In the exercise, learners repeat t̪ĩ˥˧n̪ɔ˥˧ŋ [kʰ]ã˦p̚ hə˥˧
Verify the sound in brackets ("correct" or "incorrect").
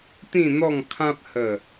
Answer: correct